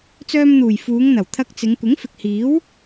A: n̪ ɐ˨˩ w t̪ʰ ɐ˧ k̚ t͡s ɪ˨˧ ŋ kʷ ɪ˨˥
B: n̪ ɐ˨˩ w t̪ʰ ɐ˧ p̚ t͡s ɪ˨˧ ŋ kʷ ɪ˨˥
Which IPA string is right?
A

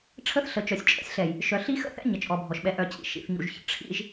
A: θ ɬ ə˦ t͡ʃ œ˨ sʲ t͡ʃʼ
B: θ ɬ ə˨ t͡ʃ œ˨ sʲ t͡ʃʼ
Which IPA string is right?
B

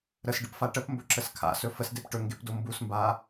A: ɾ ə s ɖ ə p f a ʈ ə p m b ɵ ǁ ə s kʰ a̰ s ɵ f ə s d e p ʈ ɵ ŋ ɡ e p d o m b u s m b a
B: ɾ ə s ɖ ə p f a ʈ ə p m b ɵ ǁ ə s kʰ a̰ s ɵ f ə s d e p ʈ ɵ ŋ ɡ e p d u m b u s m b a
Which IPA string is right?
A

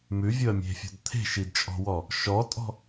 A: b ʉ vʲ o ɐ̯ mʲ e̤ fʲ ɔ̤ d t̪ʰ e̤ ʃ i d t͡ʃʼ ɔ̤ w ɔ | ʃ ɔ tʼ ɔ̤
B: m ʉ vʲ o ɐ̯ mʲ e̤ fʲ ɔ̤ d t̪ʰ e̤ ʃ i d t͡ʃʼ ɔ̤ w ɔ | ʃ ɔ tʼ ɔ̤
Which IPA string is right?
B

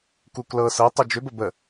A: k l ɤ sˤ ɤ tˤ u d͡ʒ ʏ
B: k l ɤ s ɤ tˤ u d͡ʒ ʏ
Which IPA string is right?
B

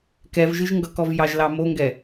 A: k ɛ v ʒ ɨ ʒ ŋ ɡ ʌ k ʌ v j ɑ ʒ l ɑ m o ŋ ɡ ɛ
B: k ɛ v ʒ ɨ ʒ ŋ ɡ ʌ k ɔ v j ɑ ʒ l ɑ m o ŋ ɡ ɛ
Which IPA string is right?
B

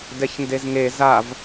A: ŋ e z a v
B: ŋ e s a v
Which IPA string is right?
A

